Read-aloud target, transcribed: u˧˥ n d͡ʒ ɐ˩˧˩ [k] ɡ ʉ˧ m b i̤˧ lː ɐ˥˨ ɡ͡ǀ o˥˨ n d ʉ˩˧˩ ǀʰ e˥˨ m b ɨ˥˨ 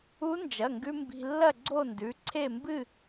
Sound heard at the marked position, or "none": ŋ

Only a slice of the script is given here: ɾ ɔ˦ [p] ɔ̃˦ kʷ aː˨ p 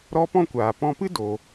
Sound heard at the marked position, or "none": p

